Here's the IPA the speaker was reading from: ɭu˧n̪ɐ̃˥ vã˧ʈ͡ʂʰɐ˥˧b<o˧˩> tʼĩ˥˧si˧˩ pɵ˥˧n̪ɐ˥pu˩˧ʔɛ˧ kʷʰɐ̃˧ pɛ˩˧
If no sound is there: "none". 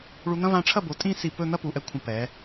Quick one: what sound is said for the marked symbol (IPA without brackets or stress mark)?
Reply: o˩˧